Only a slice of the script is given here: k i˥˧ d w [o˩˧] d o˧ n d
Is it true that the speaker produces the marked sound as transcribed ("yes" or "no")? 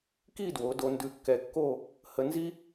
yes